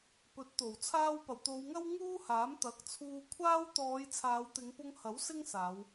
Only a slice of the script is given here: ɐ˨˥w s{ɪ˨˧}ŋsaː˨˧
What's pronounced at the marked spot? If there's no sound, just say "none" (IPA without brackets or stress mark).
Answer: ɪ˥